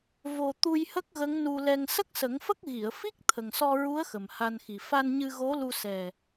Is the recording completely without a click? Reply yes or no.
yes